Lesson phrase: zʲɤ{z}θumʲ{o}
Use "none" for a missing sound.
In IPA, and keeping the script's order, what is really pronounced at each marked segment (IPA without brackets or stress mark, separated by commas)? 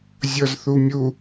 z, u